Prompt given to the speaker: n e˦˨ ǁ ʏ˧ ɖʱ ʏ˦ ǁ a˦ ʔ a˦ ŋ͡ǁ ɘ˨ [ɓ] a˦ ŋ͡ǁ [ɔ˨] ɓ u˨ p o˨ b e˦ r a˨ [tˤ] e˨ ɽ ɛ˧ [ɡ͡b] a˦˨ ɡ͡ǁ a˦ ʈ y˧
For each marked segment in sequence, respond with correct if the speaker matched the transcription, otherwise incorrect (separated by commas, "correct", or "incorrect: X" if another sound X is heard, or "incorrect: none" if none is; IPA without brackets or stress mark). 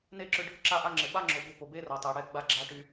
correct, incorrect: o˨, correct, correct